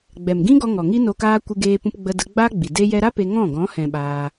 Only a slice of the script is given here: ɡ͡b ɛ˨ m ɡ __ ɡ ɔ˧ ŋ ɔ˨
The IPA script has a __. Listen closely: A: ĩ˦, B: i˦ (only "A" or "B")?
A